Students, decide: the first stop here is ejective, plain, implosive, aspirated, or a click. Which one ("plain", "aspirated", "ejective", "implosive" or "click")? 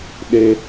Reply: implosive